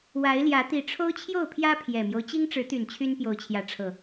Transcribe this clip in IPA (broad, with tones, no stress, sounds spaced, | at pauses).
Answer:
w a˨˦ ɪ̯ l j ä˨˦ t̪ i˨˩ ʈ͡ʂʰ o˦ ʊ̯ t͡ɕʰ j o˥˨ ʊ̯ pʰ j ä˦ pʰ j ɛ˨˩ m j o˦ ʊ̯ t͡ɕ i˦ ŋ ʈ͡ʂ ɻ̩˨˦ t̪ y˨˩ n t͡ɕʰ y˦ n p j o˨˦ ʊ̯ t͡ɕʰ j ä˨˦ ʈ͡ʂʰ ɤ˨˩